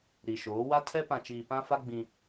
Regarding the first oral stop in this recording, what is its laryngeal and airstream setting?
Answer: aspirated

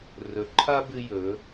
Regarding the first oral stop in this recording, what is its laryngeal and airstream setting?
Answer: click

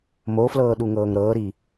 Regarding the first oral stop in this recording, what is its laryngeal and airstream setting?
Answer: implosive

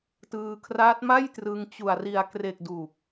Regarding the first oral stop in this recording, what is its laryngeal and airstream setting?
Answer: plain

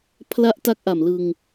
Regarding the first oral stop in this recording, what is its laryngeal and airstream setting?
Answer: aspirated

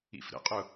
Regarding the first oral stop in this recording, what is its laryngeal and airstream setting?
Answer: ejective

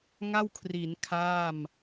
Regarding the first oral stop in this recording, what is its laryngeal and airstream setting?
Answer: aspirated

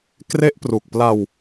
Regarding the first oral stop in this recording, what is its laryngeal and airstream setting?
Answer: plain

